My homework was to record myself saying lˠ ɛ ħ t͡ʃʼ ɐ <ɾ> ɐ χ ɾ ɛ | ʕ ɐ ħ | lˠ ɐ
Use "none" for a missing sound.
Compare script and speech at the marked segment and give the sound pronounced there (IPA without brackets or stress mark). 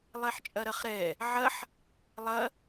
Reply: ɾ